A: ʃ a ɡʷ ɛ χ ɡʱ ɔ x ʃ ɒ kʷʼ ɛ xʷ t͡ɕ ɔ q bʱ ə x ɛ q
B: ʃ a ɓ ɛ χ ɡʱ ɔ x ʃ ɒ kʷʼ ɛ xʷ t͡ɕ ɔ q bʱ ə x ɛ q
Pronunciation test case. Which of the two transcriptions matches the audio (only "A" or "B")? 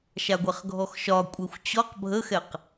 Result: A